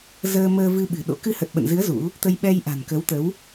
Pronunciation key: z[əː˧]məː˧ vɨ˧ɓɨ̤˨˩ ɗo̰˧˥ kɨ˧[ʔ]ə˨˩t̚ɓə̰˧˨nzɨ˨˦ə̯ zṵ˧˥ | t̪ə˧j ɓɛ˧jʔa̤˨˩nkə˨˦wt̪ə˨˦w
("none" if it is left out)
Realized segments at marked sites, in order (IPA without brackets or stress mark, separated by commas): əː˧, h